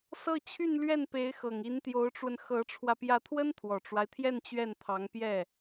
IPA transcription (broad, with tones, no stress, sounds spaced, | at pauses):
s ɤ˥˧ t͡ɕʰ y˥˧ n l ɥ ɛ˥˩ n p e˧˥ ɪ̯ x ɤ˨˩ ŋ i˧˥ n t̪ j o˧˥ ʊ̯ ʈ͡ʂ w ə˧ n x ɤ˧˥ ʈ͡ʂʰ w ä˧ p j ä˧˥ t̪ʰ w ə˥ n t̪ʰ w ɔ˨˩ ʈ͡ʂ w a˦ ɪ̯ t̪ʰ j ɛ˥˧ n t͡ɕ ɥ ɛ˥˩ n t̪ʰ ɑ˧˥ ŋ p j ɛ˥˩